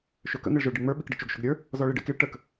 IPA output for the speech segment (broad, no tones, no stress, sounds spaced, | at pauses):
ʃ ø k ə̰ n̪ e ɭ ʒ ə˞ ɭ ɖ i ŋ͡m ə˞ ɓ i k ɖ ə̰ t͡ʃ ʊ ɡ ʃ ʊ ɡ ɾʲ ə˞ | z ɔ ɭ i ɖ ḛ k i ɭ ʈ ə k